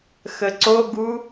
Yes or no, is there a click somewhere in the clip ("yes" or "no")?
yes